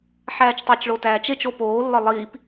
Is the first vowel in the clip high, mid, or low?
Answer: low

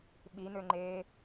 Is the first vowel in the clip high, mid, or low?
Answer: high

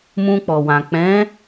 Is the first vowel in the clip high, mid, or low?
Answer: high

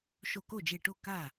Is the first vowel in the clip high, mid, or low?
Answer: mid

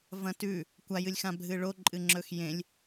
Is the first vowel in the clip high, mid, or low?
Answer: low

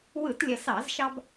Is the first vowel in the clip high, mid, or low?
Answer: high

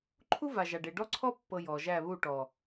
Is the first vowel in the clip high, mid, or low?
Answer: high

